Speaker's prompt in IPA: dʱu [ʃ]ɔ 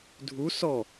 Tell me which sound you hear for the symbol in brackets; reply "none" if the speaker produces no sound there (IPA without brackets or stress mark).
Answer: s